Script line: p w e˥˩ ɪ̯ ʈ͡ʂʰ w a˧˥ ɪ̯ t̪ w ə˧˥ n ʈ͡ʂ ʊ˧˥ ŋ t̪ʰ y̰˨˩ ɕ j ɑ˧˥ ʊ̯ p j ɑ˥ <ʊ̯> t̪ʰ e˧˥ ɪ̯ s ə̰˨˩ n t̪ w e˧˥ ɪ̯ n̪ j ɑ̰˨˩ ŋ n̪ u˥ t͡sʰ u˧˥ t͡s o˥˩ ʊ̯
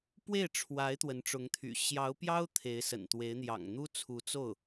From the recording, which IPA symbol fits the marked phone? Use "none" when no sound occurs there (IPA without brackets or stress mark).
ʊ̯